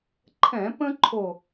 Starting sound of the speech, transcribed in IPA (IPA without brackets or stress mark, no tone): ǃʰ